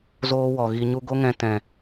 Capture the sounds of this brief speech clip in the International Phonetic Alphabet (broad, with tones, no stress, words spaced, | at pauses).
zoː˦wɔ˨ɣi˧ɲu˦ ɡo˦ŋɛ̃˧tɛ̃˨